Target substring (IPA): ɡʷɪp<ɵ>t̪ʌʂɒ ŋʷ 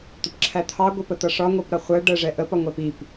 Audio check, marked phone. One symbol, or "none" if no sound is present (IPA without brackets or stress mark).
ə